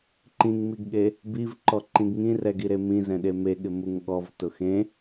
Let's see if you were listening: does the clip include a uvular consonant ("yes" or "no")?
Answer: no